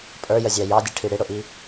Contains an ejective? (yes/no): yes